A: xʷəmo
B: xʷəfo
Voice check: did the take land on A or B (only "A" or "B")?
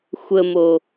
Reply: A